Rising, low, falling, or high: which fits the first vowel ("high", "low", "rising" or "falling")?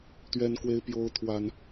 high